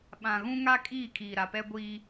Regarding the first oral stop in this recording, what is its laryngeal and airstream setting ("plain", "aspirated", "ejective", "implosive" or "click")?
implosive